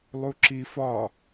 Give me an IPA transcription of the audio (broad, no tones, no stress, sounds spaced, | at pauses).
lˠ u ǁ i f ɒ